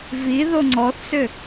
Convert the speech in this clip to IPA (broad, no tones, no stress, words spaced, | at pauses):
vi ðoŋ͡ǀɔθsʏ